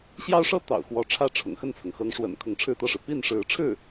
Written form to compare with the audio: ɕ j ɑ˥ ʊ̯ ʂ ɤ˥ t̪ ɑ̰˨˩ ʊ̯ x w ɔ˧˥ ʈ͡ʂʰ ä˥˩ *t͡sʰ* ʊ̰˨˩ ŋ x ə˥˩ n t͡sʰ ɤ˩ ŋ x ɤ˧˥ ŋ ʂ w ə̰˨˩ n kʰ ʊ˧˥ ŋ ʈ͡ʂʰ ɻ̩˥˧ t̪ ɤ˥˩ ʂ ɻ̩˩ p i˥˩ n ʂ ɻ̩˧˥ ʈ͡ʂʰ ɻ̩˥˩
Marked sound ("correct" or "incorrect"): incorrect